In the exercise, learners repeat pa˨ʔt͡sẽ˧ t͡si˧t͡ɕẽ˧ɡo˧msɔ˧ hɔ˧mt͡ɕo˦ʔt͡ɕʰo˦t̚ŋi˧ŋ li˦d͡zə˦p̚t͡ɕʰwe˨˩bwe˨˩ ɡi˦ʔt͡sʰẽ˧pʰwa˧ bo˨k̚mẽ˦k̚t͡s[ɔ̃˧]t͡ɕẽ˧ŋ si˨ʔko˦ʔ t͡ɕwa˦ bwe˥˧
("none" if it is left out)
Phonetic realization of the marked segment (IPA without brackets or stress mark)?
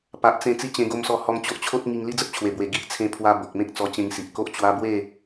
ɔ˧